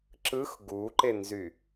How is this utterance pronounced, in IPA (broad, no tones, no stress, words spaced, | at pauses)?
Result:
ǁɯx ɡuǃenzy